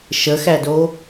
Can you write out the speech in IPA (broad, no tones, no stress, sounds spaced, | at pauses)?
ʃ ə x æ d o